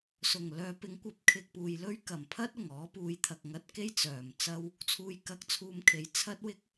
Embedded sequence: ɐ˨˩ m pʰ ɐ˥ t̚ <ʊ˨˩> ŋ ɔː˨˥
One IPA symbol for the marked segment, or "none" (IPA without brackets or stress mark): ʊ˨˩